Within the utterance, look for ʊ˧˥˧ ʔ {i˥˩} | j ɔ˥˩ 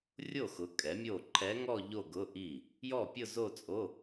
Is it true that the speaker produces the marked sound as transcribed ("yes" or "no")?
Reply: yes